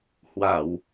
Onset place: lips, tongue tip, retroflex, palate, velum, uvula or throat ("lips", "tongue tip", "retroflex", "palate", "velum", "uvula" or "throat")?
throat